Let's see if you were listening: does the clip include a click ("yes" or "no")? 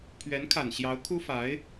no